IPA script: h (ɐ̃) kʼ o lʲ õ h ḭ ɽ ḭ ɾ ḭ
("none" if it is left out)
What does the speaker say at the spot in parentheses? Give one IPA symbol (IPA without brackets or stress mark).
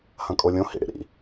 ɐ̃